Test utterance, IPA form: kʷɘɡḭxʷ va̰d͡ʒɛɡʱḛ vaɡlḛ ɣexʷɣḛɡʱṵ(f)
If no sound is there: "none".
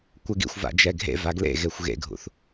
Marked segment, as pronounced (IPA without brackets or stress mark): θ